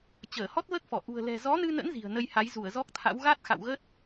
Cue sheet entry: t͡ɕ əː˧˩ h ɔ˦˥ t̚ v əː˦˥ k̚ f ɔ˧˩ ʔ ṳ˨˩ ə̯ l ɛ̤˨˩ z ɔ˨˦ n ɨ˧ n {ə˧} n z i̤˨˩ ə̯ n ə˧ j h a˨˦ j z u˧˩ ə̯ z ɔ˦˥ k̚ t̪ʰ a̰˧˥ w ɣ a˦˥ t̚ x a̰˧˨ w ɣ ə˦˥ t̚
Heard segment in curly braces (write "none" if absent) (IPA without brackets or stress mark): ə̰˧˥